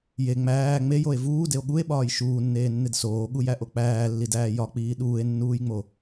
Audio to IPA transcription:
je ŋ͡mæː ŋ͡mejoe̯ vuːdeo̯ ɠue̯ɓɒːj ʃuːnːeːnːed soːɠujæʔo k͡pæːlːidæː jɒk͡piː ɗuːe̯nːuːjŋ͡mo

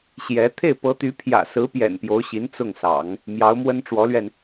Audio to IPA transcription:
ɕjɛ˧˥ t̪ʰe˥˩ɪ̯pɤ˧˥t̪y˧˥ pʰjä̰˨˩sɹ̩˧˥pjɛ̰˨˩n pjo˧˥ʊ̯ɕi˧˥n t͡sʊ˥˩ŋsɑ̰˨˩˦ŋ | mjɑ˧˥ʊ̯mwə˥nʈ͡ʂwɔ˧˥lɥɛ˧n

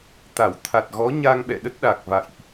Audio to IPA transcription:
t̪a˧˩w t̪ʰa˨˩t̚ɣɔ˨˦ ɲa˧ŋɓɛ̰˧˨ɗə˦˥t̚ɗa˨˩k̚ va̰˧˨jʔ

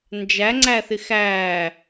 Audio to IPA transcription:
nd͡ʒæŋ͡ǀæθɪ xæ

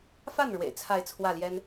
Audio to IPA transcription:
fa˥˩n ɻwḛ˨˩ɪ̯t͡sʰa˥˧ɪ̯t͡sʰwä˥˩ljɛ˥n

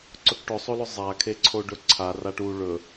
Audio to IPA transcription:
ǀɵkʈʊsˤolʊ zˤakʰeǀʰoɖɵ ǀʰaraʈ u ɭɵ

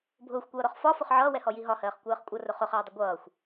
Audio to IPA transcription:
bʱʊːxʷkʷʌːɾɔχ fɒfʊχ ʕʌːwɛhɔji ɦɒhɜːχkʷɜːχ kʷʼʌrʊ χʊχɜːdˤɪ ɡʷʌːxʷ

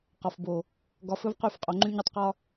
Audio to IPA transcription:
qɒ˨fbo˨ | ɡɒ˨˦fɵ˦vqy˦˨fqʼo˨ ŋ͡ǃy˦ɲɵ˦tˤqɒ˦

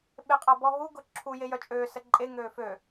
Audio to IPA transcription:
ɓeqʼabɔɦu ɡʊǁʰu jejœt͡ʃʼøː səǃʼe ŋøːfø

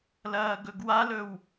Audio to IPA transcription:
lɐːɡɵɡwalɵw

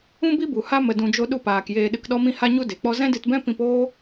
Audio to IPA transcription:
ũ˦bi˦bu˨ha˦ mə˧dũ˧d͡ʒo˦ ɗu˧paː˨k jeː˧ɗɨ˧kɗɔ˦mĩ˦ ha˦ɲu˦ de˨k͡pɔ˦ zɛ̃˦dɨ˧tbɛ̃˦ pĩ˧poː˦

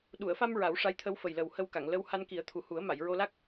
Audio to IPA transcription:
ɗu˨˩˨ə̯fa˧m ɹa˨˩˦wʂa˧˥jt̪ʰə˧˥w fə˨˩jlə˨˩w hə˧wka˨˩˨ŋlə˧˥w ha˧nki˨˩˦ə̯ t̪ʰu˨˩hu˨˩˦ə̯ma˨˩˨j ɹo˧la˦˥k̚

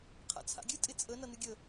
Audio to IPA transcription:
qʰa̰t͡sʰa̰ɡʲɨ tʼɪt͡sʼə nʌnɨɡʲə

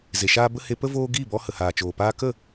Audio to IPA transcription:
ze˨ʃaː˦ bə˦ he˧pə˦ voː˦ ɡiː˦˨bɔ˧ hə˨haː˨t͡ʃoː˨ paː˧ kə˦˨

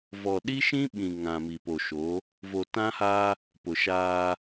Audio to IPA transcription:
vɔ˨ɗi˦ʃĩ˦ɓĩ˨ ŋã˨mi˨ po˨ʃo˨˦ | vo˨tã˦haː˦ | pʊ˨ʃaː˦

